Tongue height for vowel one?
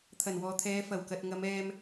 low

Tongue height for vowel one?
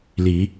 high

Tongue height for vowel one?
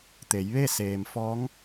mid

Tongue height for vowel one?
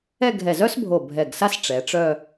mid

